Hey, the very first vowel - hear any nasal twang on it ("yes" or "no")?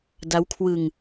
no